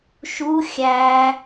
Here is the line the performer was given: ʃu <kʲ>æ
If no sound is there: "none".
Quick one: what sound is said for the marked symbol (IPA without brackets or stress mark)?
xʲ